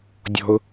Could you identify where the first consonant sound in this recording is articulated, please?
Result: alveolar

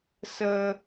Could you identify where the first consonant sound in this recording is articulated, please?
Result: alveolar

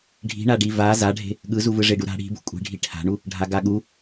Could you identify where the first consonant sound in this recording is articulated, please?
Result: retroflex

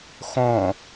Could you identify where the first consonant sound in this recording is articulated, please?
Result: velar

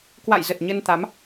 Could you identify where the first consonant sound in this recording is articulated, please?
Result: velar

